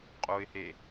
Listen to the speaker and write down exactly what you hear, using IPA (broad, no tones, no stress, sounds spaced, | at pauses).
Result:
qʼ o ɪ̯ h e